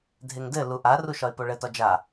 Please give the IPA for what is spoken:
dʱ e ŋ d ɘ l u ʔ a r u ʃ ɒ ɪ̯ p o ɭ ɘ t ɒ d͡ʒ a

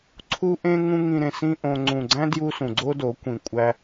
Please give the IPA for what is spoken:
ǀʰ u˦ ʔ ẽ˦ ŋ ũ˦ ŋ ĩ˧ ɾ ẽ˨ s ĩ˦ ʔ õ˧ ŋ͡ǀ ũ˨ ɡ͡ǀ æ̃˦ d j u˧ s ũ˨ ɡ͡ǀ o˦ d o˨˦ kʷ ĩ˨ kʷʼ æ˧

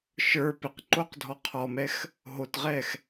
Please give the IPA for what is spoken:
ʃ ə˞ p ɪ q ǃ o q dʱ ɔ qʰ ɔ m ɛ x | ɦ o t ʁ ɛ x

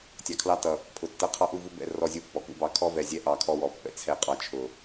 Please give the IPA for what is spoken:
tʲ ɑ˨ kʰ l ɑ˦ t ʌ˨ | pʰ ʊ˨ tː ʌ˦ qʰ ɑ˦ ʔ u˦˨ v u˦ b ɛ̰˦ r ɔ˦˨ zʲ u˦ pː ɔ˨˦ k ṵ˦ b ɑ˦ kʰ ɔ˦ v ɛ˨ zʲ ɛ˦ ʔ ɑ˦ kʰ ɔ˦ w ɔ˨ pː ɛ̰˦ t͡sʰ ɛ˦ qʼ ɑ˦ t͡ʃʰ ʊ˨

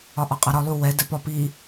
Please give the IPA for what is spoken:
ɒ ʔ ɒ qʼ a ɾ ɒ lˠ u w ɛ d ɛ p ɒ p i

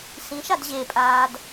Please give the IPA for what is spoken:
s ĩ ʃ a d ʑ e pʼ aː d

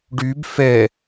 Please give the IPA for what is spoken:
ɖ y b f ɛ

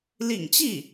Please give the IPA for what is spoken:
l ḭ˨˩ ŋ t͡ɕ i˥˩

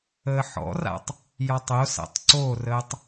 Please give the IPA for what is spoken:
əː ħ ɔ̰ r a̰ tˤ | j ɒ tˤ o s a̰ tˤ ǀ o r əː tˤ

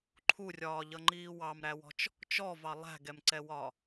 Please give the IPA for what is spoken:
ǃʰ u rʲ ɒː ʎ ʌ ŋ͡ǃ iː w ɑ m ɾ æ w ɔ̤ t͡ʃ | t͡ʃ ɔ v ɑ lˠ æ̤ ɡ ɛ m ǀ ɛ w ɒ

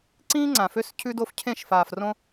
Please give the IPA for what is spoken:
ǀ ĩː˦ ŋ͡ǀ ã˨ f ø˦ s cʰ ʉ˦ d o˦ f cʰ ẽ˦˨ ʃ f aː˨ f r õ˦

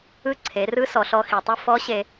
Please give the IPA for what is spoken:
ɯ˧˥ ǀʰ e˩˧ r ɯ˧˥ s ɔ˩˧ ɬ ɔ˧ x i˩ tˤ i˧ f ɔ˧˥ ɕ e˧

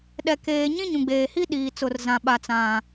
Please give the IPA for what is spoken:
ɗ ɛ˨ k eː˨ ɲ ĩ˦ ɲ ũ˨ ɡ͡b eː˨ h i˦ ɗ iː˨ t͡s ʊ˨ r z ã˨ ɓ a˨ t͡s ã˨

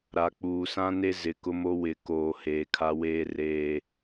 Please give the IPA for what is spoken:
ɾ a˨ k͡p uː˨ s ã˦ n e˦ z ɪ˨ k ʊ˦ m o˦ w ɪ˨ k oː˨ h eː˨ kʰ a˦ w eː˦ r eː˦

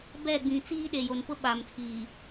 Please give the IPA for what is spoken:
b ɛ˦˨ ɡ͡b ĩ˨ t͡s iː˦ ɗ e˨ j o˨ n p ʊ˦ ɓ aː˨ m tʰ iː˨

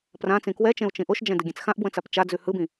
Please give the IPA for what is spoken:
p r ã t͡s ĩ k w ɛ t͡ʃ ẽ u̯ t͡ʃ ĩ ʔ o ʃ d͡ʒ ɛ̃ d ɯ ɡʲ ẽ t͡s x ã ʔ b w ə̃ t͡s a p t͡ʃ a d͡z ʉ h ɯ b ĩ

